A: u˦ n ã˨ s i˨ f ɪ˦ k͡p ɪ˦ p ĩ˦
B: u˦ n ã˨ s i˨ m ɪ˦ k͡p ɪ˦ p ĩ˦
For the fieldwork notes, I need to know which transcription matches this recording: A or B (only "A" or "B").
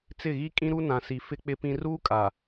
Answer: A